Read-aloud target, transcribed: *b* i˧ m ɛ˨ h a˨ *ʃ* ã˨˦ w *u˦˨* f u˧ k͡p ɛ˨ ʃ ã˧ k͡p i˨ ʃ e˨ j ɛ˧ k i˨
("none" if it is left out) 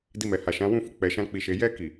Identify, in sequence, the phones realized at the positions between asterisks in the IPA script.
d, ʃ, ũ˦˨

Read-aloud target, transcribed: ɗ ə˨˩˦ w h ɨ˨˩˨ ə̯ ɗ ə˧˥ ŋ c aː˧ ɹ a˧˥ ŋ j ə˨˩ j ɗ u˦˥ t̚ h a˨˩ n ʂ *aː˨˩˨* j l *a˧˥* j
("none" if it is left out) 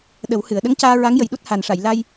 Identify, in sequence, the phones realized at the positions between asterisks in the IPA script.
a˨˩˨, a˧

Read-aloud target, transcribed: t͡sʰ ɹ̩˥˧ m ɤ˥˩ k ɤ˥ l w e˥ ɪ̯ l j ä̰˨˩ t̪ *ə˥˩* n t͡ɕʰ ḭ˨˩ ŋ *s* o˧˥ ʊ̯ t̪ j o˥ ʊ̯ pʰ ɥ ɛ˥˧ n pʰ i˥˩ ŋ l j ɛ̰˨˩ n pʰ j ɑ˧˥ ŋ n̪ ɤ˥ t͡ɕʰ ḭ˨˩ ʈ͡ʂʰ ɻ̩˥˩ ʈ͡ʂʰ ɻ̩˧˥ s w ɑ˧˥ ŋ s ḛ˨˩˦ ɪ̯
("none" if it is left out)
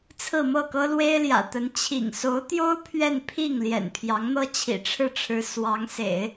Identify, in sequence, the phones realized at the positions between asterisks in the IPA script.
ə˧˥, s

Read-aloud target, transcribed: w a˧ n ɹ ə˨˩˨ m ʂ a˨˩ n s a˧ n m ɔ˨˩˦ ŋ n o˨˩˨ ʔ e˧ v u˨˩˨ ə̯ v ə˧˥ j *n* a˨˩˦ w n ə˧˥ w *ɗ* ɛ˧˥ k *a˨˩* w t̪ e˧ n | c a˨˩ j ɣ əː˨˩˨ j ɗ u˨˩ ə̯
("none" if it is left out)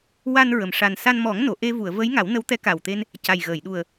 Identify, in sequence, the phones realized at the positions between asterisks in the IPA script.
ŋ, t̪, a˨˩

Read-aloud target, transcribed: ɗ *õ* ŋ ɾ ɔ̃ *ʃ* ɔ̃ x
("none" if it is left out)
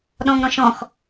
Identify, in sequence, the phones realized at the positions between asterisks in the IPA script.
ɔ̃, ʃ

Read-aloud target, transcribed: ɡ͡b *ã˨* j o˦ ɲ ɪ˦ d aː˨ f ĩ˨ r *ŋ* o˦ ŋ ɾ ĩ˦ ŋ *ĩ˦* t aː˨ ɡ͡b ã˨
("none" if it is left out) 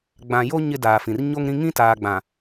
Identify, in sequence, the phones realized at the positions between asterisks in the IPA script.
ã˨, ɲ, ĩ˦

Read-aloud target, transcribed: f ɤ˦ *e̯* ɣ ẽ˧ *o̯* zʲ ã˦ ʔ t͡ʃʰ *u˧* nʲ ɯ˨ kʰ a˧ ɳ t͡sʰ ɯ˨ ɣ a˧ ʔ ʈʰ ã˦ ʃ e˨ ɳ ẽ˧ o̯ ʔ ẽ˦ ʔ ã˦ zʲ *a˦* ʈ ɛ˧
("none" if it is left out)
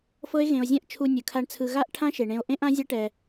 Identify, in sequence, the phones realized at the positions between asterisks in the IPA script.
e̯, o̯, u˧, a˦

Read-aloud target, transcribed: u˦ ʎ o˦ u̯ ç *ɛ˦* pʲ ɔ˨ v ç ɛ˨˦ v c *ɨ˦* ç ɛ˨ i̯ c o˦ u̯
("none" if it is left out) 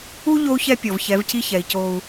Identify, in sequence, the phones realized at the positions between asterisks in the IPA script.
ɛ˦, i˦

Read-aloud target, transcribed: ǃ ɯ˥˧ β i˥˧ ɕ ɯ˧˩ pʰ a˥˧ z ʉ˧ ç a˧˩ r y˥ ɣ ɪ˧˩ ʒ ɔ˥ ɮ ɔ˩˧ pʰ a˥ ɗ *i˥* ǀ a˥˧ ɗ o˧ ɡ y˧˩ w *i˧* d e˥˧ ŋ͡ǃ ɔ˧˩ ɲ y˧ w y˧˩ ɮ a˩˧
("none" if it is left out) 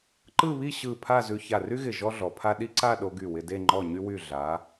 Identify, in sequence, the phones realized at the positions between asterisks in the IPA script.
i˥, ɪ˧

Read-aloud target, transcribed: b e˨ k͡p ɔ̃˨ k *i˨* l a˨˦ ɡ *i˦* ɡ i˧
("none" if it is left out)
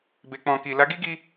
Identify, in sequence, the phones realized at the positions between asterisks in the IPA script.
i˨, i˦

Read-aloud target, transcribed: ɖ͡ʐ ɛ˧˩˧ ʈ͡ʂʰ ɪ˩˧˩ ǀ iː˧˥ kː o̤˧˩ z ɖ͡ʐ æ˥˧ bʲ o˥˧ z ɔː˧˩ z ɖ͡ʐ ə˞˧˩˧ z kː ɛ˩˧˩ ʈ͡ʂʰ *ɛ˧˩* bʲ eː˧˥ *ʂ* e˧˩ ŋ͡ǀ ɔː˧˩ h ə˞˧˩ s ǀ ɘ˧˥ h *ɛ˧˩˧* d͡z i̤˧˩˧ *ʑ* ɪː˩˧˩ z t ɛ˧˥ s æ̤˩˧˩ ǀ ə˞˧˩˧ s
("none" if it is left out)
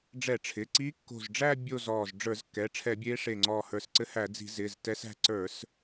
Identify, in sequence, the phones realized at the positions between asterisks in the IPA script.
ɛ˧˩˧, ʂ, æ˧˩˧, z

